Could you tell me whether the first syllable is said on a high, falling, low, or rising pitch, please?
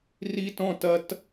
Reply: high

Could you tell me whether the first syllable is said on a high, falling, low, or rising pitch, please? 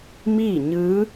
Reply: falling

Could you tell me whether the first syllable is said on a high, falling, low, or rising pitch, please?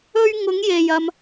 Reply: high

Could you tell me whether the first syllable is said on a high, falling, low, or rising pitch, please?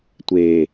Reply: low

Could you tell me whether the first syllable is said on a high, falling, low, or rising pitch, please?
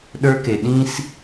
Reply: high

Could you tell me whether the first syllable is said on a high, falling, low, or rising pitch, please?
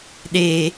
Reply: high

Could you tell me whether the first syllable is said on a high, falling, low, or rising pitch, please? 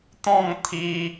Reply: falling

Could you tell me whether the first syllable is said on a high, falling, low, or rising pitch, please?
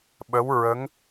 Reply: rising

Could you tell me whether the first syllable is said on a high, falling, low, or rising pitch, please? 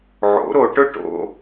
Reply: rising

